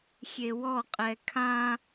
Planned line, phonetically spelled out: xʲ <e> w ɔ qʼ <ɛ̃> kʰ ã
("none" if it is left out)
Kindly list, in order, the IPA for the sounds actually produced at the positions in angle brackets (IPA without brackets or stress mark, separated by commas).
e, ɛ